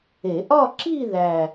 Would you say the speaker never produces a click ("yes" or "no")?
no